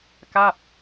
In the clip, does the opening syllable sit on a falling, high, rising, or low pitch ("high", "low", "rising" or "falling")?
falling